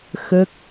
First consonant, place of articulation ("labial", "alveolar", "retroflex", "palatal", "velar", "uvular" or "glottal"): velar